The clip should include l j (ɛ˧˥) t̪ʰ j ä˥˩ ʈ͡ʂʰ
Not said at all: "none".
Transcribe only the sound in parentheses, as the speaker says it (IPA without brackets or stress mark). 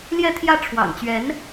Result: ɛ˥˧